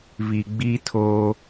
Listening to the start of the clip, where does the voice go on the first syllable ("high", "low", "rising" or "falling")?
low